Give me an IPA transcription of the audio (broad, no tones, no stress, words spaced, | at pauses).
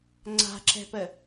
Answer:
ŋ͡ǀa̤ǁɛ̤pə